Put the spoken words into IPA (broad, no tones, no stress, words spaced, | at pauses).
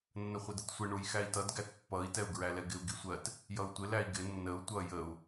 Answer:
nːəχʷɪdətsʷɪ ɳujxæi̯tʌd ɡætpːʌi̯ tɛu̯ɡɹælɛɡɪu̯ ɡisʷɜt | jʌu̯tʷɪ læi̯ɡɪ nːəu̯ tʷʌ jəu̯